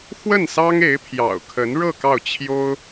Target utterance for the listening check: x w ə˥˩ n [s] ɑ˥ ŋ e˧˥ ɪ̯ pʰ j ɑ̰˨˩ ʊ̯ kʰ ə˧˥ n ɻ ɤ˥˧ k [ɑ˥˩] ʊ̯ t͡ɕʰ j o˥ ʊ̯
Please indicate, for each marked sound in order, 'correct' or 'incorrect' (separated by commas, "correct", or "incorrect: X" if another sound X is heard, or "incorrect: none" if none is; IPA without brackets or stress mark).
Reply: correct, correct